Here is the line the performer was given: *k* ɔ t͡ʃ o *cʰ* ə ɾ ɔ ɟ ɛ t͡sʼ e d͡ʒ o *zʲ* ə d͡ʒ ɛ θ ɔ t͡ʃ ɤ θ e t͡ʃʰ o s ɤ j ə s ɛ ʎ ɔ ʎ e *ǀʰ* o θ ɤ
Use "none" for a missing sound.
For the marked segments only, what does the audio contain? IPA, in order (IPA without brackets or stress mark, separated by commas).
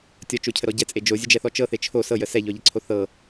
tʲ, cʰ, zʲ, ǀʰ